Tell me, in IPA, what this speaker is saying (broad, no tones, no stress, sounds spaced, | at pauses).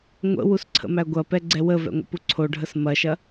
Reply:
ŋʷ ə̰ w u s ǀʰ ə̰ m æ ɡʷ ɐ p ɛ ɡ͡ǀ ɛ w ə v ɛ̰ ŋʷ ə̰ p u ǀʰ o ɖʱ ə s m ɐ ʃ ɐ